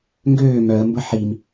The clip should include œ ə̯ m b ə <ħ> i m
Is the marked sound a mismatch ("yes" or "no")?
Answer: no